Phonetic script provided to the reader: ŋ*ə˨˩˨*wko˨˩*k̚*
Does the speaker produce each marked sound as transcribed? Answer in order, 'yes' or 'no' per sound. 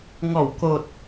no, no

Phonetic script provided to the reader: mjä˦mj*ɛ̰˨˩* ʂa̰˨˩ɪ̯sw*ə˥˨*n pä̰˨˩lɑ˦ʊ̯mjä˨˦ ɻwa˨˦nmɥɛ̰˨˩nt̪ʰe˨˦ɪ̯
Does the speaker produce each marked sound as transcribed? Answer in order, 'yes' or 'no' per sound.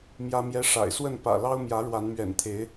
no, yes

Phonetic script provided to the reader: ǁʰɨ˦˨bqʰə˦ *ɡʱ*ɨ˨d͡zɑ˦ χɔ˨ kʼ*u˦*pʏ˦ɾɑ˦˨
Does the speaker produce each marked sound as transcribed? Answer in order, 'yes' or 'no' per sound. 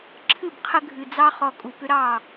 yes, no

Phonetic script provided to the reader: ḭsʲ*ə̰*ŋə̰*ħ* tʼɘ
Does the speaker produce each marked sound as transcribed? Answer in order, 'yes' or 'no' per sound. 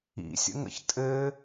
yes, no

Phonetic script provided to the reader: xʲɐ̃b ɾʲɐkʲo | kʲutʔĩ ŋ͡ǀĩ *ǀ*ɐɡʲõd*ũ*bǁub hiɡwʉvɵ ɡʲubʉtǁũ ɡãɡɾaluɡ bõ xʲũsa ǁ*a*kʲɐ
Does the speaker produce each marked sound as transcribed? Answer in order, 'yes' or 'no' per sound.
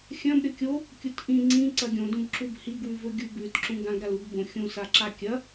yes, yes, yes

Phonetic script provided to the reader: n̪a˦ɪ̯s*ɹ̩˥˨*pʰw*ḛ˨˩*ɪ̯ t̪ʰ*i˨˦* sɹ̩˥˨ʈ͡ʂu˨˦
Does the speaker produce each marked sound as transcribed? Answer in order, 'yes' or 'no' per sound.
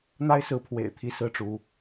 no, yes, yes

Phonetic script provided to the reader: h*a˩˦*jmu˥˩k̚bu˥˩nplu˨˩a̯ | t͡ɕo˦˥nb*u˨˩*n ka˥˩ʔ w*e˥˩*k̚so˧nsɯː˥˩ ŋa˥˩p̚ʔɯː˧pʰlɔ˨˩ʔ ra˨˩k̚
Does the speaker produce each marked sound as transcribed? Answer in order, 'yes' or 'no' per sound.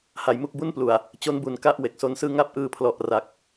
yes, yes, no

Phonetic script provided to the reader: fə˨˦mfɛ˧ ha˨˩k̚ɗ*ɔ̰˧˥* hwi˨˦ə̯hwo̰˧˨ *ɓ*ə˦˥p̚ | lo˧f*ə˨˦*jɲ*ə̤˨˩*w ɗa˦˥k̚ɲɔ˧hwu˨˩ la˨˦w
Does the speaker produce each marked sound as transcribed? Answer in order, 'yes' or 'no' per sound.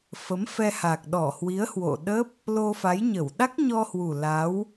no, no, no, no

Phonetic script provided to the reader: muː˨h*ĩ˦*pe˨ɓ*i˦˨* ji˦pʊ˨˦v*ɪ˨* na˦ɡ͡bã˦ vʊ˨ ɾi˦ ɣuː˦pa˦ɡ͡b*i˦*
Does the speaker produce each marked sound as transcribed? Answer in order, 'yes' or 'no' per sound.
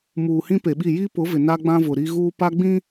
yes, yes, yes, no

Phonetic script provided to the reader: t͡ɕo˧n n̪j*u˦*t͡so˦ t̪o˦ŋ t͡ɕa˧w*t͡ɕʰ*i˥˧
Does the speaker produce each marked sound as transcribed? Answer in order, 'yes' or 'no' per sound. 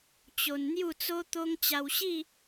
no, no

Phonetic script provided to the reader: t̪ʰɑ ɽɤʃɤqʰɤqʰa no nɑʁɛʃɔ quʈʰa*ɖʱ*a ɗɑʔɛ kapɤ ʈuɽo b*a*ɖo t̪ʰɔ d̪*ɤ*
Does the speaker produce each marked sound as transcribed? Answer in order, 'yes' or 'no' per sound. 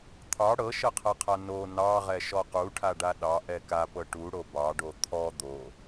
no, no, no

